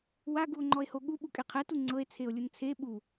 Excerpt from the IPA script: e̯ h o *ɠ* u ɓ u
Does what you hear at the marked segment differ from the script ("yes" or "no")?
no